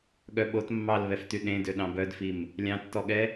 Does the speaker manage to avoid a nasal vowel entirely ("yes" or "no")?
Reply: no